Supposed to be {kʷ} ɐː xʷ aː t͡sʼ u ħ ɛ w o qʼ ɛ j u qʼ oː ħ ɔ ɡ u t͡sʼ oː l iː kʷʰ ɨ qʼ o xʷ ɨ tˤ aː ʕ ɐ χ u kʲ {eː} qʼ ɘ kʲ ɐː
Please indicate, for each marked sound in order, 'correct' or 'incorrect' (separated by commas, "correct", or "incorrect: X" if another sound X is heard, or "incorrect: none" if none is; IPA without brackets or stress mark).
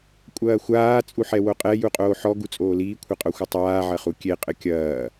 incorrect: kʷʼ, incorrect: e